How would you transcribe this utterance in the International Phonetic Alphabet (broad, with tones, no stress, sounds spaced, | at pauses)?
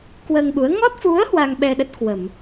k w əː˧ ŋ ɓ u˨˦ ə̯ ŋ ɔ˦˥ t̚ f u˨˦ ə̯ h w a˧ ŋ ɓ ɛ˧ ɗ ə˦˥ t̚ k w ə˧˩˨ m